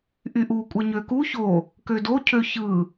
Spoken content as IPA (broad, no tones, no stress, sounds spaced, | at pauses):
ʔ y ʔ u kʷʼ e ɲ ø k u ç o | k ø d o cʰ ø ç ɯ